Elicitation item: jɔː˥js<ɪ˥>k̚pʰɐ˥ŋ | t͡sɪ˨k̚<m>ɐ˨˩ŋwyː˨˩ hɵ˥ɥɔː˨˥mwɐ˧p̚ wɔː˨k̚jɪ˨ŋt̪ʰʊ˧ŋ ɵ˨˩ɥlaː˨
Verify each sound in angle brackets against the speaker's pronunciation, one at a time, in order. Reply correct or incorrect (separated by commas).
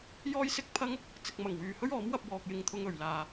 correct, correct